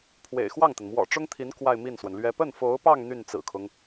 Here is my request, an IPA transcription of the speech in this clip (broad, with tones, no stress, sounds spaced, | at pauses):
pʰ w ḛ˨˩ ɪ̯ x w ɑ˥˩ ŋ t̪ ə˩ n m w ɔ̰˨˩ ʈ͡ʂ ʊ˥ ŋ t̪ʰ i˧˥ n k w a˥˧ ɪ̯ m i˥˩ n s w ə˩ n l ɥ ɛ˥ p ə˥˩ n f o˧˥ ʊ̯ p ɑ˥˧ ŋ n̪ y˥˩ n t͡s ɹ̩˨˩ kʰ ʊ˦ ŋ